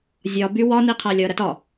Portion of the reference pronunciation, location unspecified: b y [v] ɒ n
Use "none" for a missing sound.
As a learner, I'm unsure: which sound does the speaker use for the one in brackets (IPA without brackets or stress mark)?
w